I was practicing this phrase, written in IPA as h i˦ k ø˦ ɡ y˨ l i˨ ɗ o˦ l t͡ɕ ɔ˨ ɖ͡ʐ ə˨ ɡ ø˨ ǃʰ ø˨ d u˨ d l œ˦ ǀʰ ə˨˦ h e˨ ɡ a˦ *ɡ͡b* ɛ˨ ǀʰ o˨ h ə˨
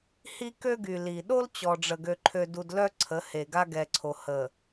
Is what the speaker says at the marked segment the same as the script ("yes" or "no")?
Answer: no